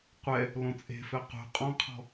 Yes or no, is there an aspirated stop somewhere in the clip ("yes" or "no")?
yes